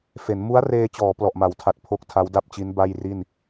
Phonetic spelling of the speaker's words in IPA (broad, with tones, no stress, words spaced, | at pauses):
fe˩˦n mu˦˥a̯reː˧t͡ɕɔː˩˦ plɔ˨˩ʔma˩˦wtʰa˨˩t̚ pʰo˥˩k̚ tʰa˦˥wda˥˩p̚t͡ɕi˦˥n ba˥˩jri˥˩n